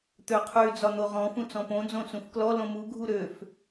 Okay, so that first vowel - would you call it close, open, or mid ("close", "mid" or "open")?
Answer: mid